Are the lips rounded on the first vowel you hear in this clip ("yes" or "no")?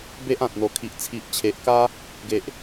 no